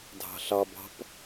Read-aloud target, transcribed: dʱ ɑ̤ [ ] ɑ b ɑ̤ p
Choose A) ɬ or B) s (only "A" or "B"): A